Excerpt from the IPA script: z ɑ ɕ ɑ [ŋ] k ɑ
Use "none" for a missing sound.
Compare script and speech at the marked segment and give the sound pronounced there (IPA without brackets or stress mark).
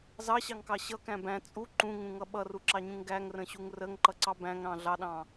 ŋ